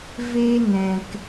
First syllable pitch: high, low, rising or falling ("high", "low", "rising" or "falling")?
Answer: high